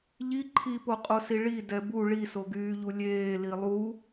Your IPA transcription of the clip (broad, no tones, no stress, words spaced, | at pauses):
ʎi ǃʰipoqʼosi ɭi dɛbu ɭisoɡyːʎu lʲeː lilˠu